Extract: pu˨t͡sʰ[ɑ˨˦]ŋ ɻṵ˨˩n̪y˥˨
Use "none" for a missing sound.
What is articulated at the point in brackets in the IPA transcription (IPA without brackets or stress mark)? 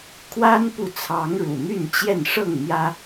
ɑ˨˦